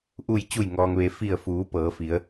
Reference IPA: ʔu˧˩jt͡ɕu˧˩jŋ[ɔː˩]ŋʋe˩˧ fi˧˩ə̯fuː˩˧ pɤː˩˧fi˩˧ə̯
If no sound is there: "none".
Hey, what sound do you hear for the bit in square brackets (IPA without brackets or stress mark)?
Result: ɔː˩